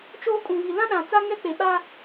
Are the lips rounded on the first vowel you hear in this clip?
yes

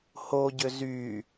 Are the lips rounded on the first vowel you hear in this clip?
yes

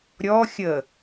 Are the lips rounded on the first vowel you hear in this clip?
yes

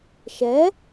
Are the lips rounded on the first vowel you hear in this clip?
no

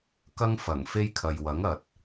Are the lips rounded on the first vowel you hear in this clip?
no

